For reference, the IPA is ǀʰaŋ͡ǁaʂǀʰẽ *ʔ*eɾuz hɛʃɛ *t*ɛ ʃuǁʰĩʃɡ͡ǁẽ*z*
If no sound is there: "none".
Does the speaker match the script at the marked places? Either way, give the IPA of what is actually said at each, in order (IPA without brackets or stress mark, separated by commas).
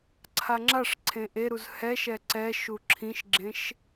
ʔ, ǀ, ʃ